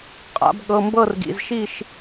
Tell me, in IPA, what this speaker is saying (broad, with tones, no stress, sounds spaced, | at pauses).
qʼ a̰˩˧ b ɠ ɤ˩˧˩ m b ɤ˥˨ r ɡ ḭ˩˧˩ z ʃ i˥˨ ʃ